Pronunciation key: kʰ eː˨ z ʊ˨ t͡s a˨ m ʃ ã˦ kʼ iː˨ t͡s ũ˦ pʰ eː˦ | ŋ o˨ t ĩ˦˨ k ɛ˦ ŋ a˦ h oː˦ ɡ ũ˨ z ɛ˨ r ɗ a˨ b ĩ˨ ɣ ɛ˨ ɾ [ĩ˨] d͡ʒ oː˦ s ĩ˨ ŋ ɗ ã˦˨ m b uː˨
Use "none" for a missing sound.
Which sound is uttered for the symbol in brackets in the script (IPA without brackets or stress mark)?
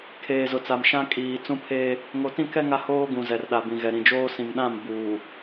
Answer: ĩ˨